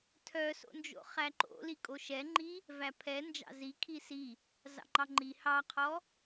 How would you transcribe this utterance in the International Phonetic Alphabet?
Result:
tʰ œ s o̰ n d͡ʒ o̰ χ æ ǃ o̰ l i kʼ o ʃ ɛ ŋ͡ǃ i | v æ pʰ ɛ n d͡ʒ ɑ̰ z i kʰ i s i | z ɑ̰ ŋ͡ǃ ɑ ŋ͡ǃ i h ɑ qʰ ɔ

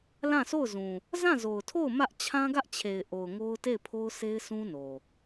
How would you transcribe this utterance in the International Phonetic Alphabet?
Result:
l ã˦˨ s o˦˨ ʊ̯ z ũ˨ | z ã˦˨ z o˨ ʊ̯ tʰ o˦˨ ʊ̯ m ä˦ ʔ t͡ɕʰ ã˦ ɡ ä˦ ʔ t͡ɕʰ e˨ ɪ̯ ʔ o˨ ʊ̯ ŋ o˦ ʊ̯ t e˦˨ ɪ̯ pʰ o˦ ʊ̯ sʰ e˦ ɪ̯ sʰ ũ˦ n o˨

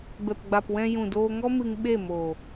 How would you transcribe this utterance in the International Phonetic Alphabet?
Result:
b ɛ˨ p ɡ͡b a˨ p w ɛ̃˧ j ũ˨ d oː˧ ŋ ɔ˦ m ɨ˧ ŋ ɓ e˦˨ m oː˨

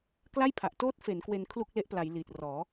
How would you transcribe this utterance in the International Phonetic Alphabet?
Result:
k l a˥˩ j pʰ a˨˩ ʔ t oː˦˥ t̚ f e˩˦ n k w e˧ n kʰ l u˥˩ k̚ l e˦˥ ʔ p l a˩˦ j l iː˨˩ t̚ r ɔː˩˦

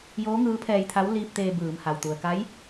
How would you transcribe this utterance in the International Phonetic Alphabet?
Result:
j oː˧˥ ŋ ɯː˧˥ pʰ ɛː˧ j t̪ʰ a˧˥ w l iː˧ p̚ t̪ eː˧ b ɯː˩˧ m h a˩ w t̪ u˩ ə̯ k a˧˥ j

